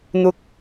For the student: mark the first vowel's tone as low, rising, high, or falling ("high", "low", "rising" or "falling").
rising